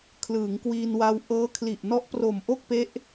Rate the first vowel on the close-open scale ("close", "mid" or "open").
close